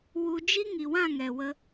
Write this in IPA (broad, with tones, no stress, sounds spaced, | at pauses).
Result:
w u˧ d͡ʒ i˦ ŋ i˨ w ã˦˨ ŋ ɛ˨ w ə˧